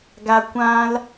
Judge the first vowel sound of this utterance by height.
low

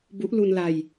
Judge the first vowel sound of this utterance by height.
high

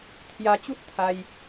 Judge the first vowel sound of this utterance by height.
low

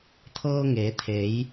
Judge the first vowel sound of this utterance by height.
mid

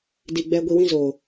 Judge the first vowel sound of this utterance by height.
high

